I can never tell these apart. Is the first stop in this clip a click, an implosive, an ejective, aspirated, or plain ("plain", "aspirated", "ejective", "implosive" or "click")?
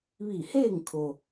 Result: aspirated